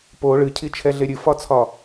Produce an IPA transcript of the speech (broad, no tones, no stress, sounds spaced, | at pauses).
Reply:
p o ɭ ɨ cʰ i t͡ʃʰ ɛ ɮ e ɾʲ ɨ f ɒ t͡sʰ ɒ